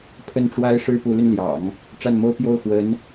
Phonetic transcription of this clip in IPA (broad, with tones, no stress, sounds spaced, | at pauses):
pʰ ə˥˩ n ʈ͡ʂ w a˥ ɪ̯ ʂ ɻ̩˥ p u˧˥ l y˧ n l j ɑ̰˨˩˦ ŋ | ʈ͡ʂ a˥˩ n m o˥ ʊ̯ p j o˥˩ ʊ̯ x w ə˧˥ n